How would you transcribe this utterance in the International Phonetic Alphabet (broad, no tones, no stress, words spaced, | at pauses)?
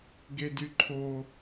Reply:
ɡedyǃʰo